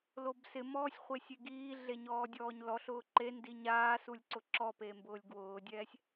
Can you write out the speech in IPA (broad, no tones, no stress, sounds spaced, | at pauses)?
l o b s ɪ m ɔː sʲ χʷ e sʲ e ɡ iː ɮ e ɲ ɔː dʲ ɔː ɲ l ɔ ɬ ʊː ǃ e n d i ɲ aː s u lʲ ǀ ʊ ǁ ɔ p e m b ʊː lʲ ɡ w ʊː dʲ ɛː sʲ